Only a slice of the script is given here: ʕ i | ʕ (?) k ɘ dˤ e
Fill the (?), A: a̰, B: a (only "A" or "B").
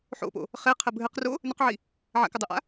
A